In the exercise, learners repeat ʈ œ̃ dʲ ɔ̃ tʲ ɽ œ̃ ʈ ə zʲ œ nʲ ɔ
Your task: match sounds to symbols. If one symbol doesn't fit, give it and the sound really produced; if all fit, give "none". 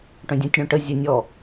none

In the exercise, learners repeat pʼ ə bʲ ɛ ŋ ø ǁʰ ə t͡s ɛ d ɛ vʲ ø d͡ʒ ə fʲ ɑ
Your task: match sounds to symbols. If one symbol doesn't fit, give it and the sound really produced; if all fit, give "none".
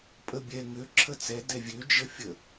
ɑ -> ə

